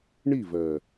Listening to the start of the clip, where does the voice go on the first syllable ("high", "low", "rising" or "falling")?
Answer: falling